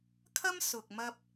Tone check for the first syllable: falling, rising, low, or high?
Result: high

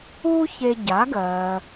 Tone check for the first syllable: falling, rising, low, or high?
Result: high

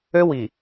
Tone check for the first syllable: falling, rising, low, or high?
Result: high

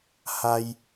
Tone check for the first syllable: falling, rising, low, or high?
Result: high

